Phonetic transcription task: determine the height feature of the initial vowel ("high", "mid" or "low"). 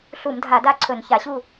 high